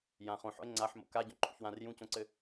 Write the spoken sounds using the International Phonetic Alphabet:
j ã χ õ ħ ɔ̰ e̯ ŋ͡ǀ a ħ m o̰ k a ɟ ɔ̃ ǃʰ ṵ ç w ã r j ũ c õ ǀ ɘ

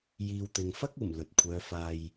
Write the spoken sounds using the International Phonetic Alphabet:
j iː˨ w t̪ ɪ˨ ŋ f ɐ˥ k̚ uː˨˩ m l ɵ˨ t̚ kʷʰ œː˨˧ f aː˨ j

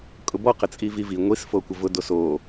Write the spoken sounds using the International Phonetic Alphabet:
kʼ ʊ b ɔ q ə t͡sʼ i v i v i ŋʷ i s f o kʷ ə v ʊ d o s o

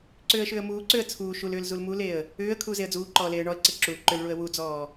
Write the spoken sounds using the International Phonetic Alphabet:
ǀ ʏː ə̯ ʃ ʏː ə̯ m uː ǀ ʏː ə̯ t͡sʰ uː ʃ u l ʏː l z u l m u l e ə̯ | ʏː ə̯ kʰ uː z e ə̯ d͡z uː ǃ ɔː l eː ə̯ ɳ ɔ ə̯ ǀ e ǁ u l ǃ ʏ l ɭ u ə̯ w u d͡z ɔː

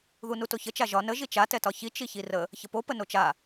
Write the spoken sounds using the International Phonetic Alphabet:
ð u n u t o ç ə t͡ʃ a ʒ ɒ n ə ʒ i t͡ʃ a t ɛ t ɒ ç i t͡ʃ i ç i r ə | ç ə p o p ə n o t͡ʃ a

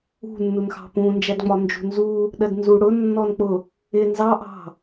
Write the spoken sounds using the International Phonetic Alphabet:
ṳ nː u n x ɑ̤ p ũ n d͡ʒ æ d ŋ͡m ɒ n d͡ʒ ṳ n z u | ɗ ɜ d n z u ɽ ʊ nː ɔ n k͡p ʊ | ɪ n z ɑ ʔ ɑ̤

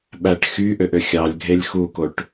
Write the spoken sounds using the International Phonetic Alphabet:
ɓ æ ʈ x y ʔ ø ʔ ø xʲ ɑ lʲ ɡʱ e lʲ x u k o ʈ

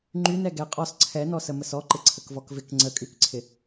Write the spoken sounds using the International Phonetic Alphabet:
ŋ͡ǃ y n ɛ ɡ ɛ qʼ ɔ s ǀʰ ɛ n ɔ s ə m ə s ɔ ǃ ɪ ǀʰ ə k v ɔ k v ɪ k ŋ͡ǀ ə kʼ y k ǀʰ ɪ

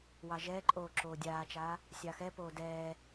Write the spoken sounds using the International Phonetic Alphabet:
w ɑ ʒ ɛː ǃʼ oː ǁ oː dʲ aː t͡ʃ aː | sʲ ɑ x ɛ p oː d ɛː

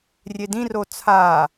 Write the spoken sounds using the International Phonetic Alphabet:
rʲ e d ĩ r o t͡sʰ a

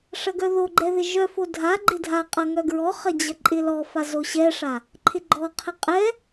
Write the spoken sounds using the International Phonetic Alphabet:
ʂ ɐ ɡ œ ð o ɡ͡ǃ ɛ ð ɪ ʒ œ f o dʱ a ɡ͡ǃ ɪ dʱ a qʼ ɐ ŋ œ ɡ ɹ ɔ χ ɐ d͡ʑ ɐ ǃʼ ɪ l ɔ f a z o ɕ ɛ ʂ a | ǃʰ ɪ ɡ͡ǃ ɔ qʰ ɛ qʼ ɛ

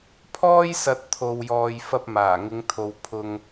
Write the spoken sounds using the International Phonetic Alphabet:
pʰ ɔː˥ j s ɐ˧ t̚ t̪ʰ o˧ w j ɔː˧ j f ɐ˧ p̚ m aː˨˩ ŋ ɪ˨˧ ŋ t̪ʰ o˨ w pʰ ʊ˧ ŋ

